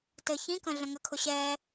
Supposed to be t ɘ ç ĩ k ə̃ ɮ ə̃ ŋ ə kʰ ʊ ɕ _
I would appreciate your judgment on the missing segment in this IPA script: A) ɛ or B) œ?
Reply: A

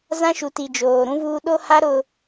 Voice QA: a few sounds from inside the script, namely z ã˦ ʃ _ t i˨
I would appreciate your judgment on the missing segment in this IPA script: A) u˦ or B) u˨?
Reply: B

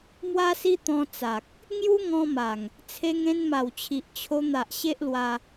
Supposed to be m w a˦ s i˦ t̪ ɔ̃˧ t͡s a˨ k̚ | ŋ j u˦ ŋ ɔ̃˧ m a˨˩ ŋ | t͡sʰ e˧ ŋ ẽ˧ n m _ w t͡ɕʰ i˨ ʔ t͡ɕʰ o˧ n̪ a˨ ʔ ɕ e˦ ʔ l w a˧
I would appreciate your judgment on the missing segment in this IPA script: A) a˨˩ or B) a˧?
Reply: A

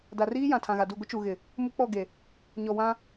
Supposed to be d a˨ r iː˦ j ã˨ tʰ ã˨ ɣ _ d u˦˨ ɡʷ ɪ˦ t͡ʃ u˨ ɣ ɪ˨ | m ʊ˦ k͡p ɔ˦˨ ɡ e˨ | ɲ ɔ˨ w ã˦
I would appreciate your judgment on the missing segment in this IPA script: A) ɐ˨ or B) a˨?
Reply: B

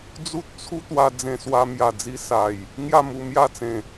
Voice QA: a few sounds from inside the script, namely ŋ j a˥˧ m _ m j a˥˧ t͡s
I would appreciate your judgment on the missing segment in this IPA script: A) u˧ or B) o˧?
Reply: A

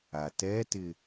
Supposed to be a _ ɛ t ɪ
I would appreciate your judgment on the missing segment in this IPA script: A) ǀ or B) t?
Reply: B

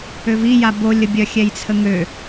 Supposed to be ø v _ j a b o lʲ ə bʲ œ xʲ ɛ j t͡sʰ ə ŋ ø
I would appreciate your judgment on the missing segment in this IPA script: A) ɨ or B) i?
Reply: B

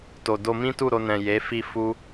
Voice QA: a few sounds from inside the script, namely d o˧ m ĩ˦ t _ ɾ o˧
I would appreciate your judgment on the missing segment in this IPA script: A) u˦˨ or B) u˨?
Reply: A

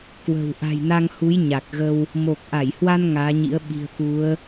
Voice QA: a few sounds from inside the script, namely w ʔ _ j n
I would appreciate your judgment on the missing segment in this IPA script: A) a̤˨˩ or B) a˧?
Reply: A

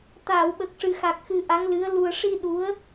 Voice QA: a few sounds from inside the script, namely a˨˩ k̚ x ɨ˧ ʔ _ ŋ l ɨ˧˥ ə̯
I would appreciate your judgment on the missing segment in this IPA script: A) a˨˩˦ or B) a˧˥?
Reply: B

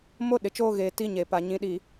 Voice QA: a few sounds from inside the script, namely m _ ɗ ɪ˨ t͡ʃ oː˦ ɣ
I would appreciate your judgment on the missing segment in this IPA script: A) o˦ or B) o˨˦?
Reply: A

